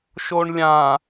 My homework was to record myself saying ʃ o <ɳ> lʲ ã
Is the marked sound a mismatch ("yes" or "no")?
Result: no